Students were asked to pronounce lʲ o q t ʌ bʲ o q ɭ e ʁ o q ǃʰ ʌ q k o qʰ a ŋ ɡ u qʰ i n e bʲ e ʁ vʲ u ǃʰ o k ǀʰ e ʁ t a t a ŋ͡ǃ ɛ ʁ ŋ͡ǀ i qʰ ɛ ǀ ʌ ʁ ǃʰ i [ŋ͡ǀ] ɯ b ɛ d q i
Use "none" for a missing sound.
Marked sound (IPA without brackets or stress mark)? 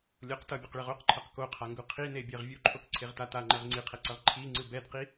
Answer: ŋ͡ǀ